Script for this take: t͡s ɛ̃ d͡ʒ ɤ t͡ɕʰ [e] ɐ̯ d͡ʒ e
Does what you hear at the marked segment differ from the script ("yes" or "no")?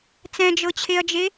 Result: no